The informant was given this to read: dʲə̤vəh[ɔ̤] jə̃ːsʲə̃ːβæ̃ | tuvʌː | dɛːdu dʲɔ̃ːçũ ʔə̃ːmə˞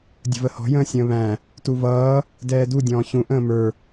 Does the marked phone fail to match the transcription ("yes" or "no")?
no